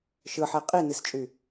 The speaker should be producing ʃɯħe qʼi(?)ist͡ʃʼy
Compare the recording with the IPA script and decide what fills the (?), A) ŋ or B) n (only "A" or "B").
B